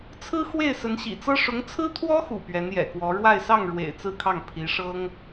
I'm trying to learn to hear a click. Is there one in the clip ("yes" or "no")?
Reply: no